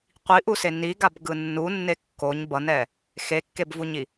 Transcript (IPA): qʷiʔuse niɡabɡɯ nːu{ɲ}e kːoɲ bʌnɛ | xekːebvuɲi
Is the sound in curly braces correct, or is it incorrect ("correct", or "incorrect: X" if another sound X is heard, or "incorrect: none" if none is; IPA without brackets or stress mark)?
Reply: incorrect: nː